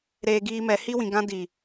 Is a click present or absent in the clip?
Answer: absent